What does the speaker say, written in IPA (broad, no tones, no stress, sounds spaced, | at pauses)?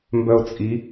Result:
m b œ ʊ̯ t͡sʼ i